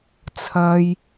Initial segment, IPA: t͡sʰ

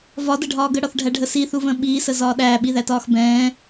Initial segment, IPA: v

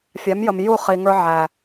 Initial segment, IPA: fʲ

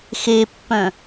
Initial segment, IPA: x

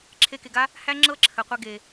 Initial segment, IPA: ǁʰ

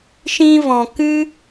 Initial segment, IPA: ʃ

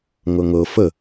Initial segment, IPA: ŋ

